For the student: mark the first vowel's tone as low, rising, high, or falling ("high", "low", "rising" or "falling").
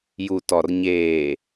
low